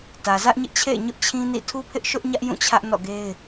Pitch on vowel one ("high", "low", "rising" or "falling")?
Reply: low